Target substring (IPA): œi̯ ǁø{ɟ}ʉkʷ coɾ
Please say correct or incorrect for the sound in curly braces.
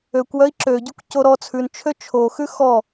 correct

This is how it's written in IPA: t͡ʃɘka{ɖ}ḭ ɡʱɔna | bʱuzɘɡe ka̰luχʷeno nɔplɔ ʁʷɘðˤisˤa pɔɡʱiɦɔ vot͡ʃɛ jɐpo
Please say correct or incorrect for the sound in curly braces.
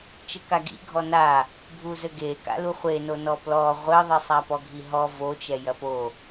incorrect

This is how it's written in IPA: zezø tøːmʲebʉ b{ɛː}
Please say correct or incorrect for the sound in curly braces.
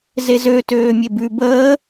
incorrect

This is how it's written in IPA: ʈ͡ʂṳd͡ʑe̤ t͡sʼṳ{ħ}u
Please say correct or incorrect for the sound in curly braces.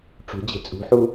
correct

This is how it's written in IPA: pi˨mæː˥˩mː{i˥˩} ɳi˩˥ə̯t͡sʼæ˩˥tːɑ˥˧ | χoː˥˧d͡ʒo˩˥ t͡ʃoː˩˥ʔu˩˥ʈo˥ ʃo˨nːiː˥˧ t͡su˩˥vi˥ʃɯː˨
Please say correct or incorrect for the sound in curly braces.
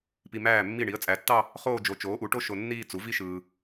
correct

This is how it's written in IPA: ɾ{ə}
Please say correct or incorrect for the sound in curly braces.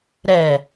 incorrect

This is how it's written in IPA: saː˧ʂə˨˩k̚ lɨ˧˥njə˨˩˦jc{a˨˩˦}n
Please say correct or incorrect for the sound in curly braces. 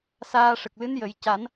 correct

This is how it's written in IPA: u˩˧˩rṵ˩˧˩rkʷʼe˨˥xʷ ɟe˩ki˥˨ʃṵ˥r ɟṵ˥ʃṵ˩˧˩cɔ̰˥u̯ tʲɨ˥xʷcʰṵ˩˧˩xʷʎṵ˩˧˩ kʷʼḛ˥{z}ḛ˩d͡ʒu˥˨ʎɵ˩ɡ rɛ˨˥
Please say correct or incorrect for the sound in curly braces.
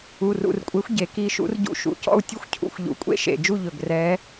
incorrect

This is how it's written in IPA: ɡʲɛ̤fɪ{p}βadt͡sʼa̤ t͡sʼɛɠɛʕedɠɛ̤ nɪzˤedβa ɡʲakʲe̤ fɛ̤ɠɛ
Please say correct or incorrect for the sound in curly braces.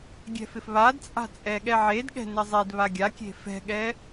incorrect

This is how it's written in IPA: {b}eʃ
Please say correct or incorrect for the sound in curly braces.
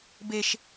correct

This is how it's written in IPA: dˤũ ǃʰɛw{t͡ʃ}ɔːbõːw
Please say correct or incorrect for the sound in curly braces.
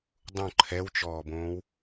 correct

